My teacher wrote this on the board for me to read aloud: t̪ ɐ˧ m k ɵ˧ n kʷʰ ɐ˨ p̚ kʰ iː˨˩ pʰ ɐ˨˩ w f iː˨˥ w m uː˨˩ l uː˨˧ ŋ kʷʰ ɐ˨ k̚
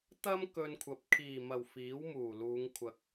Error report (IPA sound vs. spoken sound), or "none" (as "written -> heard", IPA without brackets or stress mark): pʰ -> m